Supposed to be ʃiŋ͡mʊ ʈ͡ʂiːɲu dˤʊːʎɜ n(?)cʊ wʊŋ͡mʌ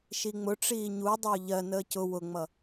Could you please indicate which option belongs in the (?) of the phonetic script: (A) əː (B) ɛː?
A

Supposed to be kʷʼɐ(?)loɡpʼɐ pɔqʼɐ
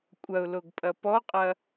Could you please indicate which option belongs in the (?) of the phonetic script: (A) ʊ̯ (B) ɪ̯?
A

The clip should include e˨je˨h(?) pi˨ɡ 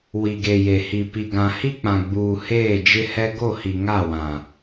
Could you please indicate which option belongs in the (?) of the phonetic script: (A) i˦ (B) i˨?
B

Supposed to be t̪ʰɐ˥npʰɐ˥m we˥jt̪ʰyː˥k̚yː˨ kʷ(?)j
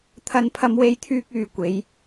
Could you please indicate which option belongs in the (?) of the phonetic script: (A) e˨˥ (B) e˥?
A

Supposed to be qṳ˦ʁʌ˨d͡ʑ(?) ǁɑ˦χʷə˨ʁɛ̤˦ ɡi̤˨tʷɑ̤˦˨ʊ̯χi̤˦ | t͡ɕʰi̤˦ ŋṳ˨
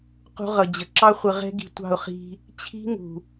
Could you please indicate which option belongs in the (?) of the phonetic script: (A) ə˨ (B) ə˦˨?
A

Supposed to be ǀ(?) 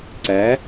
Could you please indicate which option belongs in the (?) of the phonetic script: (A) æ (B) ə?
A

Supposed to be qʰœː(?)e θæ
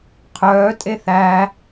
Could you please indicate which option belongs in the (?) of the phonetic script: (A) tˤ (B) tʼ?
B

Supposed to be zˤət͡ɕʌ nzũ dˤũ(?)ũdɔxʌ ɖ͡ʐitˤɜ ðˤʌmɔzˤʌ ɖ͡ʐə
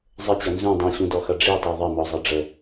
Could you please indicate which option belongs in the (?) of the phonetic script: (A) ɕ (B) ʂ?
A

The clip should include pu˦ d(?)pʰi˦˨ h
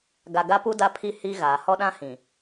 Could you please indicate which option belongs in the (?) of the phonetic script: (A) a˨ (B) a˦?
B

